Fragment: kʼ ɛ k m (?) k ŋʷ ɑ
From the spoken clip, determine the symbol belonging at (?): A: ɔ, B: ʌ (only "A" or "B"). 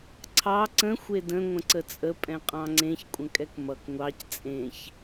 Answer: B